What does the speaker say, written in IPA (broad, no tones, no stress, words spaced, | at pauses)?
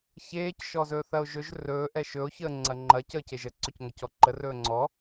çeːc ʃɔzɵθɐo̯ʒɵʒ rɵː ʔɛʃɵo̯ çəːŋ͡ǀɐŋ͡ǃɐ cəːceʒə ǀɵcŋɐcɔǃə rɵːŋ͡ǀɔ